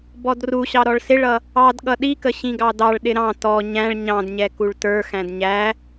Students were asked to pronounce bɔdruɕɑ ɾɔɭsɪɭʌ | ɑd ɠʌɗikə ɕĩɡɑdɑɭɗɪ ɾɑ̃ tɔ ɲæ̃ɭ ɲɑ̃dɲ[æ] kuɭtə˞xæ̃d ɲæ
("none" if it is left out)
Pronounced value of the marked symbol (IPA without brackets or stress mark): ɛ